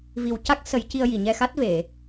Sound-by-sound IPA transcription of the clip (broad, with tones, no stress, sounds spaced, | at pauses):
v i˨˩ w c a˦˥ k̚ s ə˨˩˦ j c i˧ ə̯ j i˨˩˨ ɲ ɛ˧ x a˦˥ t̚ v e˨˩˨